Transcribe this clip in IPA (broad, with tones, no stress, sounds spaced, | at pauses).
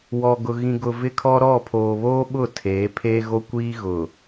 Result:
w ɔ˨ ɡ ʊ˨ ɣ ĩ˨ ɡ ʊ˨ v ɪ˦ kʰ ɔ˦ ɾ ɔ˦˨ pʰ oː˨ β oː˦ ɓ ʊ˦˨ tʰ eː˨˦ pʰ eː˦ ɣ o˦ kʷ iː˦ ɣ ʊ˨